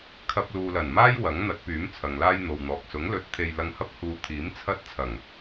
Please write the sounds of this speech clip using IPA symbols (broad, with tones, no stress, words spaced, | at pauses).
kʰɐ˧p̚luː˨lɐ˨˩nmaː˥j wɐ˨˥ŋn̪ɐ˨˥t̚pyː˨˥m t͡sʰɐ˨ŋlaː˥jn̪o˨wn̪ɔː˨k̚ sʊ˨˥ŋlɵ˧t̚ t̪ʰe˧jlɐ˧ŋhɐ˥p̚ huː˧t̪ʰiː˨˥mt͡sʰɐ˥t̚t͡sʰɐ˨˩ŋ